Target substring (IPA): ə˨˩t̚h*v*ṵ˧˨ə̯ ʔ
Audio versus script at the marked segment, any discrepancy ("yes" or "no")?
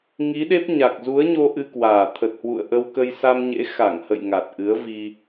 yes